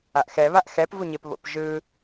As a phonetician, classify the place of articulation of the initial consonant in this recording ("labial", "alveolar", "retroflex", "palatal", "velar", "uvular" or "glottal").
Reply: glottal